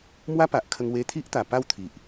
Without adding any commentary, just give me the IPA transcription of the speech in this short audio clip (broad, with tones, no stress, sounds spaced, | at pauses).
m w a˦ p a˨ ʔ kʰ ə˧ ŋ w e˧ t̪ʰ i˦ ʔ t̪ a˨˩ p a˥˧ w t̪ʰ i˨ ʔ